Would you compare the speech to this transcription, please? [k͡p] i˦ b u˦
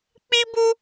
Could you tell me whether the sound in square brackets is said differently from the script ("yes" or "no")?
no